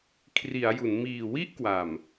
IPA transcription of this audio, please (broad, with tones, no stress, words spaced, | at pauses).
kʰri˩˦a̯ju˩˦n miː˨˩wi˥˩ʔ kwa˨˩m